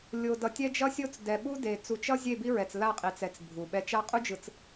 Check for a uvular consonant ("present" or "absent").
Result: present